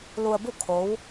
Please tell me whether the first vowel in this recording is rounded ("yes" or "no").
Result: yes